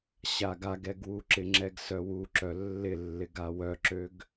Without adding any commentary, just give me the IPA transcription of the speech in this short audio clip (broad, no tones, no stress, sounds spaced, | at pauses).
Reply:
ɕ a ɡ a ɡ ɛ ɡ w u ǁ ɪ ŋ͡ǁ ɛ ɡ s œ w u ǁ œ lː ɪ lː ɪ ɡ a w œ ǁ ø ɡ